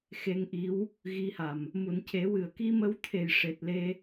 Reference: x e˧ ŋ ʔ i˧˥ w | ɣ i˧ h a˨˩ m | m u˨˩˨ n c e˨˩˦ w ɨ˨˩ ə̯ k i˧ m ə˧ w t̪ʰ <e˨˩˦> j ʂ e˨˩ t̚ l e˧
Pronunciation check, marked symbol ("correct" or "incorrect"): incorrect